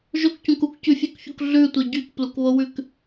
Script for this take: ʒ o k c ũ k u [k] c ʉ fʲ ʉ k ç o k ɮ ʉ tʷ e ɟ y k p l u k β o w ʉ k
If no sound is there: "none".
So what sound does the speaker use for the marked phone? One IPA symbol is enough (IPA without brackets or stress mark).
k